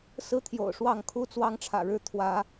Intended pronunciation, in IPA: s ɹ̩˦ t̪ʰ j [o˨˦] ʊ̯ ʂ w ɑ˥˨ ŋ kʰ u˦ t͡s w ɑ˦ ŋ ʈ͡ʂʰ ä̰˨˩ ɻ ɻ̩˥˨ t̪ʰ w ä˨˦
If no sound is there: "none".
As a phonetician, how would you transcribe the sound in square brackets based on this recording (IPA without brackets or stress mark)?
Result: o̰˨˩